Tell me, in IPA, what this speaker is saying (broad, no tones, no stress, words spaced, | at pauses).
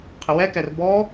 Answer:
qʰɪwɛkɛr bɔ